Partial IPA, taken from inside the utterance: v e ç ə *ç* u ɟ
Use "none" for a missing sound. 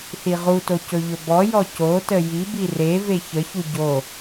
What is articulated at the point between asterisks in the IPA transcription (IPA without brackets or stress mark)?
ç